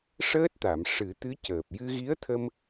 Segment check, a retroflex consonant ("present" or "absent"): present